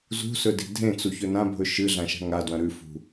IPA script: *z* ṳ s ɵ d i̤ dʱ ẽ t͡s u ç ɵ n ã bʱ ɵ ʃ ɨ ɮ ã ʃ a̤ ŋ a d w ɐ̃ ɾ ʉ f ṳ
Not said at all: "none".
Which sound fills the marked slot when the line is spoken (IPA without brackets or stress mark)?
z